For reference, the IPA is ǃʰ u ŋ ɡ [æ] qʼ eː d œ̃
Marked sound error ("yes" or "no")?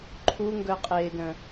yes